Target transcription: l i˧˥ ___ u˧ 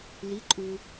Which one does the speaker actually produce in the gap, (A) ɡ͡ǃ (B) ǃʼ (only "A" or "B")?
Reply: B